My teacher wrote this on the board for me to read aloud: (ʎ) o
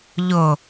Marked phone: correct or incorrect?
correct